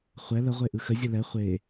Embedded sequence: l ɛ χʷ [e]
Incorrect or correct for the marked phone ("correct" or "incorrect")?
correct